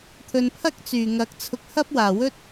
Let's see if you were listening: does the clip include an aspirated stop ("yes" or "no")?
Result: yes